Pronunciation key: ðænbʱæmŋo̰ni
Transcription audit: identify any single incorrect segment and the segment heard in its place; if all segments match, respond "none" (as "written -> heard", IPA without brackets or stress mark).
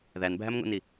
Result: none